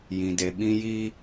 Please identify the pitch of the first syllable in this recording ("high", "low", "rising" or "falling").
low